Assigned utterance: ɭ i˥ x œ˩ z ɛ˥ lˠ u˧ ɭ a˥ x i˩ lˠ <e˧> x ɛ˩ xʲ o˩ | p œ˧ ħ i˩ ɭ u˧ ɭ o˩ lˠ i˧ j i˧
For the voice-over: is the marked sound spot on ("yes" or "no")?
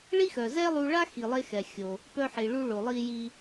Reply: yes